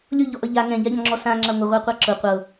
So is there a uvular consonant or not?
yes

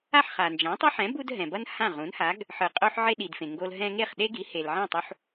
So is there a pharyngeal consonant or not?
yes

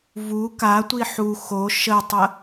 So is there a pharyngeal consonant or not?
yes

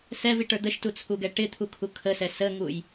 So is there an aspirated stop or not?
yes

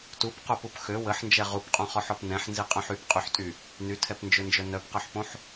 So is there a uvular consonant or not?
yes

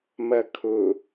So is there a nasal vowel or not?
no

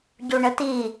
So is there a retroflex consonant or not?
yes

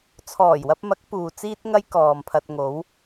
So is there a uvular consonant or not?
no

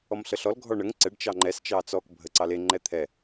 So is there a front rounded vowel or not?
no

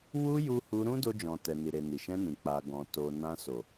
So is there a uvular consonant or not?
no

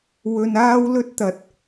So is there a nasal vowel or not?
no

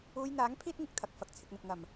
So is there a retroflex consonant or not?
no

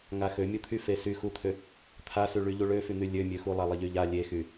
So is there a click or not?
no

